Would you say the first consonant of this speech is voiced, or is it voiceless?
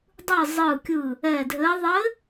voiced